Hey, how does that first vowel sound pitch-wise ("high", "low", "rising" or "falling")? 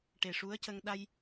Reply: low